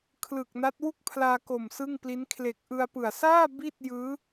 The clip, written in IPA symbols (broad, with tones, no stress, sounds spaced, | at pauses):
kʰ l ɯ˨˩ k̚ n a˦˥ t̚ w u˥˩ k̚ pʰ l aː˧ k o˨˩ m s ɯ˥˩ ŋ p l i˦˥ n kʰ l eː˨˩ k̚ ʔ ɯ˧ a̯ p ɯ˨˩ a̯ s aː˥˩ b i˥˩ t̚ j ɯː˦˥